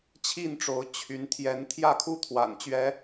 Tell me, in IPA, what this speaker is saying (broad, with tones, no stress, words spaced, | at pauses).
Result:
t͡ɕʰi˥˨nʈ͡ʂo˨˦ʊ̯ t͡ɕʰy˨˦n t̪ʰjɛ˨˦nt̪ʰjä˥˨kʰu˦ t̪ʰwa̰˨˩nt͡ɕɥɛ˨˦